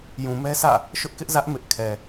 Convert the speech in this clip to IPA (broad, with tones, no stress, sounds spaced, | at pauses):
j ũ˨ m ɛ˦ s ä̰˦˨ | ʃ ʊ˦ ʔ k ɪ˦ ʔ z ä˦ ʔ m ɪ˦ ʔ kʰ ɛ˨